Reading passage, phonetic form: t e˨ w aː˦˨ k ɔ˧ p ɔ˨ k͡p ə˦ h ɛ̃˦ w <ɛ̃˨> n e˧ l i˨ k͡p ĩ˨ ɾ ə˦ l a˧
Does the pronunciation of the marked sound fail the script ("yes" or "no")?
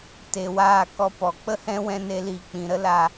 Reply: yes